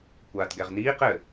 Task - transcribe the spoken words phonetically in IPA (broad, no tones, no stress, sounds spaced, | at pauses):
kʷ aː t ɡ ɛ ʁ n iː q ɘ